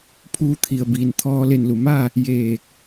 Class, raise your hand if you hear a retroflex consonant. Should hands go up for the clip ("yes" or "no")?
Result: no